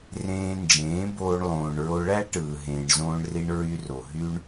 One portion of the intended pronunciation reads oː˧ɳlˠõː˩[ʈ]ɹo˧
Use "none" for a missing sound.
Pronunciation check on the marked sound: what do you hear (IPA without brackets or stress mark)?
ɳ